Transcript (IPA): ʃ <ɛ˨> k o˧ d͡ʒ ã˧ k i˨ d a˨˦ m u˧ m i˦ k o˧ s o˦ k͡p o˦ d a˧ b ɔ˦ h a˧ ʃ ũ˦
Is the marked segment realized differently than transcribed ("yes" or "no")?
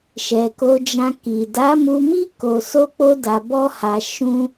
no